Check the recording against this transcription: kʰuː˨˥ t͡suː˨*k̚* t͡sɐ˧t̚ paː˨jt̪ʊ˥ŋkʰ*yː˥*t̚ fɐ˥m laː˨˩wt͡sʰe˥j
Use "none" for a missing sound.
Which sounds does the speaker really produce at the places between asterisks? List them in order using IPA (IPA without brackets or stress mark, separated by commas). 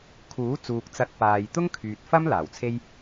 k̚, yː˨